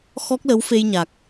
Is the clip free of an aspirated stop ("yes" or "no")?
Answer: yes